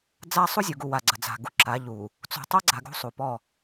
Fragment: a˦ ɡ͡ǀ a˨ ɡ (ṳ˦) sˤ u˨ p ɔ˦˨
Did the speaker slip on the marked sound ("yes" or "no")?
no